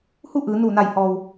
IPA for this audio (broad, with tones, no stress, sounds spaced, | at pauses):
h u˥˨ ʔ ɯː˩˧ n uː˧˩ n a˧˩ j h ɔː˩ w